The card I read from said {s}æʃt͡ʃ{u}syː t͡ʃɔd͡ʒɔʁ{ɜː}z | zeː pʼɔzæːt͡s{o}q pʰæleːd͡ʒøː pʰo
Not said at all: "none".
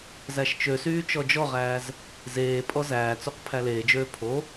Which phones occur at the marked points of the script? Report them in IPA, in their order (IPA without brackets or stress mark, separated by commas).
z, ø, æː, o